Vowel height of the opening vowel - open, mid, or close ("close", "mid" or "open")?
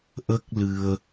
mid